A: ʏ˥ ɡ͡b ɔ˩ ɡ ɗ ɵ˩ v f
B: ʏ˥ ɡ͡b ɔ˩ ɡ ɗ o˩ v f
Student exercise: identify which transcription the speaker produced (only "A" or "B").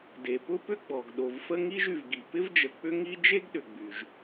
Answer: B